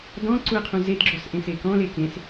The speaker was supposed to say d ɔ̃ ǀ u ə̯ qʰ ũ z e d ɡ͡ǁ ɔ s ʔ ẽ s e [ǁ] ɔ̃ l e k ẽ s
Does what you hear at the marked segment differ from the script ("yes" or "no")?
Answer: yes